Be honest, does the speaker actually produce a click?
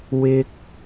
no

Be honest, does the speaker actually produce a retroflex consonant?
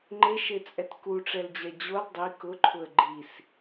yes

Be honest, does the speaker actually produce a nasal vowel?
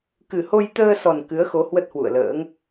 no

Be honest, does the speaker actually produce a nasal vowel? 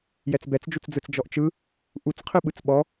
no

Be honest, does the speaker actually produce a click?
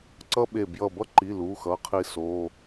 yes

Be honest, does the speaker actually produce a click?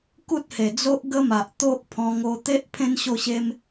no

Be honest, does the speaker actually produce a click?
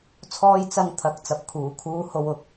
no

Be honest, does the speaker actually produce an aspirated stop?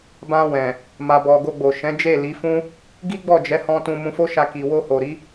no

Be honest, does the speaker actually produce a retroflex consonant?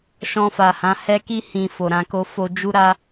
no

